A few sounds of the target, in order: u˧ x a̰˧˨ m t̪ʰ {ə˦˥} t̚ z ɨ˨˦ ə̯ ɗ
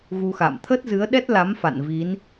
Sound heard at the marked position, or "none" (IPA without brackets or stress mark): ə˦˥